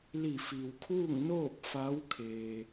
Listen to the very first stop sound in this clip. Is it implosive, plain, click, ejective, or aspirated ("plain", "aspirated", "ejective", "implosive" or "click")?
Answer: aspirated